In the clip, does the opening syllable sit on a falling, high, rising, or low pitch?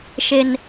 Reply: high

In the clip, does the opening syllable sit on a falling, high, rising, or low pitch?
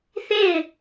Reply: falling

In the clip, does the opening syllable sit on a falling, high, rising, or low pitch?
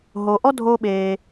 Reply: low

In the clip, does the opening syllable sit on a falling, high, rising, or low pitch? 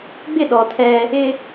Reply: falling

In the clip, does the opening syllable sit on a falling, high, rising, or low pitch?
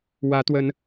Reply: rising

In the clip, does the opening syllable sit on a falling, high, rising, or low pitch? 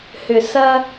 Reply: low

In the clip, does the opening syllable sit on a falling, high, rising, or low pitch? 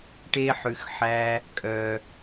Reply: high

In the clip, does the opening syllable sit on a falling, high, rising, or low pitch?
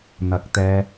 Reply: rising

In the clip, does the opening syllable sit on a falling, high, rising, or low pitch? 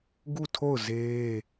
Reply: falling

